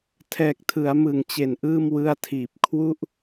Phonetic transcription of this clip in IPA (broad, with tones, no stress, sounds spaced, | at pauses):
tʰ ɛː˨˩ k̚ tʰ ɯ˩˦ a̯ m ɯ˨˩ ŋ t͡ɕ e˨˩ n ʔ ɯː˥˩ m w ɯ˧ a̯ tʰ iː˨˩ p̚ kʰ w u˥˩ ʔ